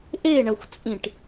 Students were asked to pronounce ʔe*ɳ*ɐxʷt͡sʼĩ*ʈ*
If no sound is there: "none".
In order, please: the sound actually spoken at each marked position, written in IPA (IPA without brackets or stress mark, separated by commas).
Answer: ɳ, ʈ